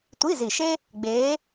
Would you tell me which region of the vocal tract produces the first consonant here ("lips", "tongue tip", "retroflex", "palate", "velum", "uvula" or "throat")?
tongue tip